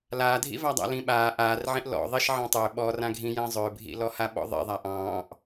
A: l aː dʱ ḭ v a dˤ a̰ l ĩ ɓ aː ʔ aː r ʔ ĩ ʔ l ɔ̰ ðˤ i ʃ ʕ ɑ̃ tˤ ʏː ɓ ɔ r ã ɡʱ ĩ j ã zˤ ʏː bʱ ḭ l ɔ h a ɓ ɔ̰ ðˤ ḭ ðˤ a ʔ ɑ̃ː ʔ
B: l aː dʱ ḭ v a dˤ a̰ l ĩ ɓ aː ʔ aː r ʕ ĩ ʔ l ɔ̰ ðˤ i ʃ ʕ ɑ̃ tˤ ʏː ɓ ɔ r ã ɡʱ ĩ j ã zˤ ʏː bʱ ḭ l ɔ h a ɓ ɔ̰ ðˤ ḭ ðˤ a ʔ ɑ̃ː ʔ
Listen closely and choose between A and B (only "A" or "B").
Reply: B